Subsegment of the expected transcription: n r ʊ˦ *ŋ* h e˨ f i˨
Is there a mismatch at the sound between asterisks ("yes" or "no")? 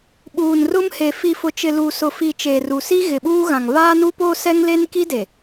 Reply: yes